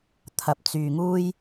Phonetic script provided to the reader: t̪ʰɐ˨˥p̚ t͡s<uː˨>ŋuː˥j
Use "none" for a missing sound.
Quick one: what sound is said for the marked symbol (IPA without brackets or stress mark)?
yː˨